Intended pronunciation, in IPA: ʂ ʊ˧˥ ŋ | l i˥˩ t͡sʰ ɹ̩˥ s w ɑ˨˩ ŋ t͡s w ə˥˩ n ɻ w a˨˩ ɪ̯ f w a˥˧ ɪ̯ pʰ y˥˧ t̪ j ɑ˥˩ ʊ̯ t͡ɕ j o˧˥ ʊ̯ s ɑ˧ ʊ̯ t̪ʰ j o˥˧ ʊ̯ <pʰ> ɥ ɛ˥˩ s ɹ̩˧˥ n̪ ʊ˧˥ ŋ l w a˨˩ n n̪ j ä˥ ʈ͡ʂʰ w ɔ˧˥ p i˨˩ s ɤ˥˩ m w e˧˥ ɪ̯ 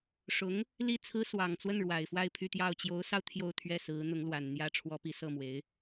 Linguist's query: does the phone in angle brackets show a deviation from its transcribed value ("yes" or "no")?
yes